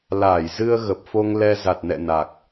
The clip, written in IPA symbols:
l aː˧˩ j z ɨ˧ ə̯ ɣ ə˨˩ p̚ f o˧ ŋ l ɛ˧ z a˨˩ t̚ n ɛ̰˧˨ n a˨˩ k̚

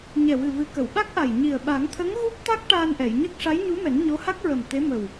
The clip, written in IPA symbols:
ɲ ɛ˨˩ w ɨ˨˩ v ɨ˨˩˦ k ə˨˩˨ w ɓ a˦˥ k̚ ʔ a˨˩ j ɲ i˨˩ ə̯ ɓ a˨˩˦ ŋ t̪ʰ ə˧˥ ŋ ɣ u˦˥ p̚ t̪ a˦˥ k̚ ʈ aː˧ n ʔ ɛ˨˩˨ j ɲ ə˦˥ k̚ ʂ a˧˥ j ɲ u˧˥ m ɛ˨˩˦ n ɲ o˧˥ h a˦˥ k̚ ɹ ə˨˩ m t̪ e˧˥ m ə˨˩ w

